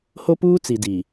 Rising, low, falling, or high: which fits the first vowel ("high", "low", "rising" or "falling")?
high